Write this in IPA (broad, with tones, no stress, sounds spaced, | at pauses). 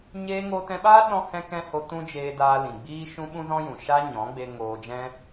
ɲ eː˧ ŋ oː˧ t ɛ̃˧ ɓ aː˦ ɗ ɔ̃˧ h ɛ̃˧ k ɛ̃˧ h o˧ t ũ˦ d͡ʒ eː˧ d aː˧ l ĩ˨ ɡ͡b iː˦ ʃ ũ˦ ɓ ũ˦ z ɔ̃˦ j ũ˨ ʃ a˦ ɲ ɔ̃˨˦ ɡ͡b e˧ ŋ oː˧ d͡ʒ ɛ̃˦